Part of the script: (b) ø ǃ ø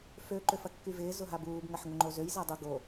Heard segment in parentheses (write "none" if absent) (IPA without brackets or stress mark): f